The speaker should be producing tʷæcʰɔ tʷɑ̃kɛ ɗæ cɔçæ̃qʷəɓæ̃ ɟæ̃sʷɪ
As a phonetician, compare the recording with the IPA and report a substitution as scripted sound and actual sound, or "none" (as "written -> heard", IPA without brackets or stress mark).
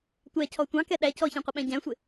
none